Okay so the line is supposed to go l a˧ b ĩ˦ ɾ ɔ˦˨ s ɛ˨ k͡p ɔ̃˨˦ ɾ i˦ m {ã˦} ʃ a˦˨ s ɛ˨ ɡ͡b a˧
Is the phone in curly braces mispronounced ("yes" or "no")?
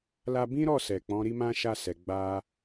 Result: no